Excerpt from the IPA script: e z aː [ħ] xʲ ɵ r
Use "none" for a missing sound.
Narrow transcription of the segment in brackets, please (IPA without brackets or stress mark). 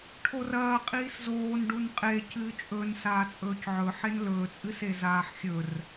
ħ